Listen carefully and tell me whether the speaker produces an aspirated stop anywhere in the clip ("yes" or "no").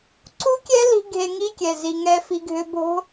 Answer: no